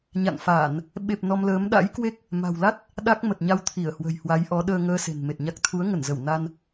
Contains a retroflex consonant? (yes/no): no